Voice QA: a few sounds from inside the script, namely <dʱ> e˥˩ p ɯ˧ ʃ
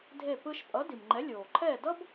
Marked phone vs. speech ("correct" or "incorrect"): correct